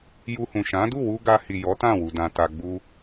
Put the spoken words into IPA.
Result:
j u˧ h ũ˨ ʃ ã˨˦ d u˦˨ w u˧ ɡ a˧ h i˨ j ɔ˨˦ t ã˦˨ w u˨ d ã˨ t a˧ ɡ͡b u˦

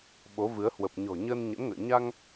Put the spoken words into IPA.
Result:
ɓ o˨˦ v ɨ˨˦ ə̯ h w ə˨˩ p̚ ɲ ɔ̤˨˩ ɲ əː˧ n ɲ ə̰˧˥ n ŋ ə̰ː˧˨ ɲ a˧ ŋ

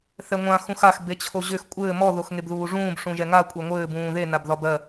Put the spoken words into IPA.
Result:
θ ɛ ŋʷ ã x ũ x a x b e t͡ɕʰ o ʑ ʏ x kʷʼ ɘː m ɔ ð o x ŋ e b ð uː ʐ ũː b ʂ ũ ʒ ɛ ŋ a kʷʼ e ŋʷ ɘː b ũː ð e n a b ð ɒ b ɜ

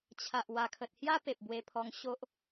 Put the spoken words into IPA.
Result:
t͡ɕʰ a˨ ʔ w a˨˩ kʰ ə˨ t̚ h j a˦ p e˨ p̚ b w e˧ pʰ ɔ˧ ŋ ɕ o˦ ʔ

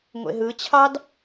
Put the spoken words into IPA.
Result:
ŋʷ ḛ ɦ ɯ t͡ɕʰ ɑ d

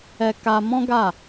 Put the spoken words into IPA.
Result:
ɛ˧ k a˧ m ɔ̃˦ ɡ a˦˨

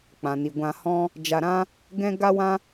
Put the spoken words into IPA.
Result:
k͡p ã˨ n i˨ ɡʷ ã˧ h ɔ̃˦ | d͡ʒ a˧ ɾ ã˦ | ɡ ɛ̃˦ ɡ a˦ w ã˦

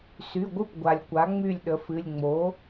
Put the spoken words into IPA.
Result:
s y˩˧˩ ɡʷ ɨ˥˨ p ɡʷ a˩ lʲ kʷ a˩˥ ŋ͡m y˥˨ lʲ ɗ ə˩˥ f ɨ˩˧˩ lʲ ŋ͡m o˩˥

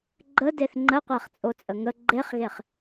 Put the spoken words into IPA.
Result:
ɡ͡ǃ ə d e θ ŋ͡ǃ ə qʷ æ χ t͡sʼ o t͡sʼ ə ŋ ə ɡ͡ǃ e χ ɣ e χ

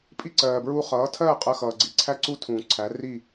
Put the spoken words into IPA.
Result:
pʼ i˥ ǀ ɜː˩ b ɹ uː˧ χ ʌː˩˥ tʰ ɜː˥˩ qʼ ɜ˧ x ʌː˩ ɡ͡ǀ i˩˥ ǀʰ æ˥ ǀ u˥ tʰ ũː˩ ǀʰ æ˩˥ r i˥˩

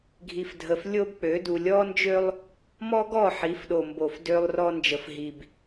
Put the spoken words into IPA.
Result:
ɡʱ i˨ f dʱ ə˨ f lʲ o˦ b k͡p ø˨˦ d u˨ lʲ ɔ˦ n d͡ʒ ø˦ lˠ | m ɔ˦ ɡ ɔ˦˨ ħ i˨˦ f ɗ o˨ m b o˨ f d ø˦ lˠ r ɔ˦ n d͡ʒ ə˨ f ɦ i˨ b

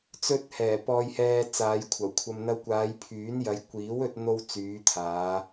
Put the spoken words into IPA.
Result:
t͡s ɵ˧ t̚ h ɛː˨˩ p ɔː˨ j h ɛː˨ t͡s aː˨˧ j kʷʰ ɐ˨˩ w kʷʰ ɐ˧ m n̪ ɐ˧ w kʷ aː˨˧ j pʰ yː˨˥ n j ɐ˨˧ j kʷ iː˨˥ w ɵ˧ t̚ n̪ o˧ w t͡s yː˨˧ t̪ʰ aː˨˧

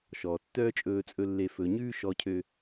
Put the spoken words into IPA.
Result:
ʃ ɔː˨ tː œː˦ t͡ʃʼ ɵː˧ t͡sʼ ɵ˧ lː e˨ f ɵ˨ ɲ ʉː˧ ʃ ɔ˧ cʰ ø˧

